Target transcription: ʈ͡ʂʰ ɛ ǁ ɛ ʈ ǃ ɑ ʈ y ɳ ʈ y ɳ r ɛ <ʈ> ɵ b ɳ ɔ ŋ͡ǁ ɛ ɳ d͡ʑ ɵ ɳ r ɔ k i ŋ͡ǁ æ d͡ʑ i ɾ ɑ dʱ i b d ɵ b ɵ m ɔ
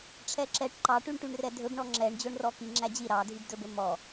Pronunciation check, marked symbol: incorrect: dʱ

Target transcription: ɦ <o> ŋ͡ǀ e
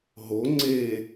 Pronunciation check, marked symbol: correct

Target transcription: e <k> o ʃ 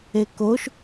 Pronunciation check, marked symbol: correct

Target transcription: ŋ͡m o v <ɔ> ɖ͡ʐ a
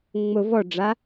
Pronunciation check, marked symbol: correct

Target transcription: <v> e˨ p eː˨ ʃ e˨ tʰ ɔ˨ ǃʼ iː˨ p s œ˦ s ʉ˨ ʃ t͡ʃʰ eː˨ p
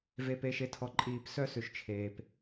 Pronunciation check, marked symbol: correct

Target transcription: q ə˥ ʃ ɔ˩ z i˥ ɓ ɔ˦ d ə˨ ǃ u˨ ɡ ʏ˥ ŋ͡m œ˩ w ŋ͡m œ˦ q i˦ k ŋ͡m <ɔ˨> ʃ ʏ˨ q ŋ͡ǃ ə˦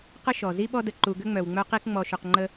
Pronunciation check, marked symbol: correct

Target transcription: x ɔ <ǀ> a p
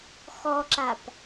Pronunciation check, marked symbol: incorrect: ǁ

